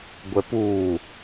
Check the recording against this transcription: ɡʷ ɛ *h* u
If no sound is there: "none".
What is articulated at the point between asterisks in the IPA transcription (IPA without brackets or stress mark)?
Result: p